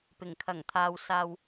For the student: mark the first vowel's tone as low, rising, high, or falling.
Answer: low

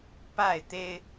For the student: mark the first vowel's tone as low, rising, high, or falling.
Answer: falling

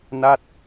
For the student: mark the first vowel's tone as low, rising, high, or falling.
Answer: falling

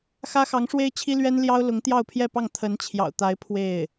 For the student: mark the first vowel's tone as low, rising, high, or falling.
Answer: high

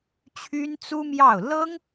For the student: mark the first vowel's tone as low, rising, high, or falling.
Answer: high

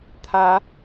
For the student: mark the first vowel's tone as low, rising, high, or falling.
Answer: rising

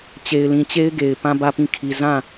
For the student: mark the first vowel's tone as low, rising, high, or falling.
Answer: low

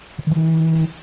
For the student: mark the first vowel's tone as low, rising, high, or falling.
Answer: high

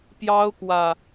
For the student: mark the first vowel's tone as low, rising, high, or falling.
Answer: high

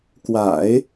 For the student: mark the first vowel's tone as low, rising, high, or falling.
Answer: low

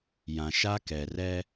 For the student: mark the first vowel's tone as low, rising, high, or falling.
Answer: low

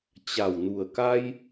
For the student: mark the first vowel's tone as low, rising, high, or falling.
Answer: low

